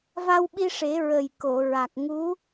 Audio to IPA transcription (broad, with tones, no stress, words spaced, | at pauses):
va˧wɓi˧ʂe˨˩˦ ɹə˨˩jko˨˩˨ ɹa˨˩k̚ ŋu˧˥